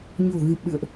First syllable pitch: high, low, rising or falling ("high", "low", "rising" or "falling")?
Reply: low